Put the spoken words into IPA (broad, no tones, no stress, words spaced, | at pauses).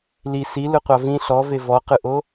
li silɯqʷa vĩ ɬɔve vɔqɯʔo